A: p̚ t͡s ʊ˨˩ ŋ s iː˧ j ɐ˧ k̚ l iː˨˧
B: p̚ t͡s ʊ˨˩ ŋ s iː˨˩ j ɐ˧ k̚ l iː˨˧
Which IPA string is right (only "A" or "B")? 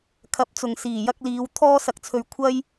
B